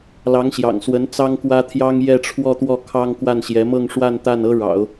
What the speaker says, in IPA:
lɑ˧˥ŋɕjɑ̰˨˩ŋswə˧˥n t͡sɑ˥ŋkwä˥t̪ʰjɑ˥ŋ jɛ˥˧ʈ͡ʂʰwɔ˥˧t̪wɔ˥˩ kʰɑ˥ŋkwa˥˩nɕjɛ˧˥ mɤ˥˧ŋʂwa˥˧nt̪a˥˩n ɤ˥ɻɑ̰˨˩˦ʊ̯

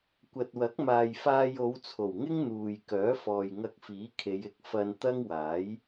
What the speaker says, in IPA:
kʷɐ˨t̚wɐ˨˥k̚maː˨j faː˧jo˨˧wt͡sʰo˨˩wŋɪ˥ŋ n̪uː˨j kœː˨˥fɔː˨jŋɐ˧k̚fiː˨˥ kʰe˨˧jɪ˨˥k̚ fɐ˧n t̪ɐ˥ŋwaː˨˥j

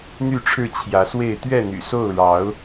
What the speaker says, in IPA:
n̪y˥˨ʈ͡ʂʰɻ̩˥˨t͡ɕʰjä˨˦swe˥˨ɪ̯ t̪ɥɛ˥˨n̪y̰˨˩so˥˨ʊ̯ ɻɑ˨˦ʊ̯

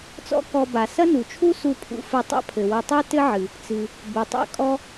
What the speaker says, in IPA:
t͡sɔ̰˥kɔ˧ba˩ sɐ˥nu˩t͡ʃʰu˥ su˧pʰṵ˧ fɘ˧ tˤa̰˥pʰɘ˩ wɐ˧tˤu˥tɘ˥ʕɨ˩ | t͡sɨ˩ | bɘ˩tˤa̰˧kʼɔ˧

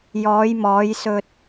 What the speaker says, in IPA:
jɔː˨˧jmɔː˨˧j sɵ˧t̚

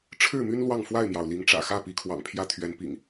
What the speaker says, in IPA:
ʈ͡ʂʰɻ̩˥˨my˦n lwɑ˥˨ŋfwa˥˨ɪ̯mjɑ˩ʊ̯ li˨˦ŋʈ͡ʂä̰˨˩ xä˥˨pi˨˦kʰwɑ̰˨˩ŋ pʰjä˦t̪ʰɥɛ˨˦npḭ˨˩ŋ

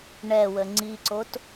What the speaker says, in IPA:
ɳɛwə ŋ͡ǀiǀot

